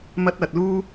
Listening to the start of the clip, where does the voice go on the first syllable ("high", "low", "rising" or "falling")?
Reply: high